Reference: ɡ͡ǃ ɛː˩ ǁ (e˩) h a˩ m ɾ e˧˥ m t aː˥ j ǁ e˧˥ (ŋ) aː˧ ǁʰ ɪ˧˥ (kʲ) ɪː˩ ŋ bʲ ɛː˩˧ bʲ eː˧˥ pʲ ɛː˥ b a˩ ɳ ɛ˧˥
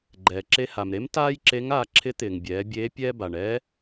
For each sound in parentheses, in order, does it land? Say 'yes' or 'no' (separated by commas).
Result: no, yes, no